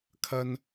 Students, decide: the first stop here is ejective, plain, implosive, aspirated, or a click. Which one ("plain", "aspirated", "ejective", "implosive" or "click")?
aspirated